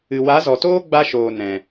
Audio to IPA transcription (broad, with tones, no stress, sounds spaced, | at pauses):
ɨ˨ w a˨˦ z ɔ˨ t oː˦ ɡ͡b a˧ ʃ oː˨ n ɛ̃˨